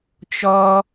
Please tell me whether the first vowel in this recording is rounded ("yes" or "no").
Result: yes